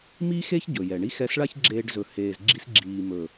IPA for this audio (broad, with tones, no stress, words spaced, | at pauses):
mi˦xe˦ç ɟɵ˨jɛ˨ ɳi˦xɛ˧sɭa˦ç ɡ͡ǁeː˧ɖzɵ˨heː˨zɡ͡ǁi˧s ɡ͡ǁiː˨mɵ˨